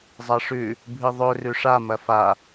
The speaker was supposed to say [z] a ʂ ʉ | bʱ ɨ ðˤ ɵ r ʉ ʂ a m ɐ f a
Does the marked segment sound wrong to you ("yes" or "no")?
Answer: yes